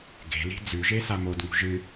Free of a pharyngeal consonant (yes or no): yes